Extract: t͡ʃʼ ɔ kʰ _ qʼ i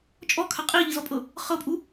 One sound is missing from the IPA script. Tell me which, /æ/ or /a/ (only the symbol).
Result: a